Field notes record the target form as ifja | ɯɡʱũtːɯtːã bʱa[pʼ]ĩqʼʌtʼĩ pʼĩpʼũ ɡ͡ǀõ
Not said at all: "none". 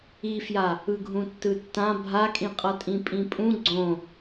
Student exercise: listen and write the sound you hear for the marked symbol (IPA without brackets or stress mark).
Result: kʼ